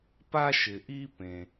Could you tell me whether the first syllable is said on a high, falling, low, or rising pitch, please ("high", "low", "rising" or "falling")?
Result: high